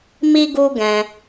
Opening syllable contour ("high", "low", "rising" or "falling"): high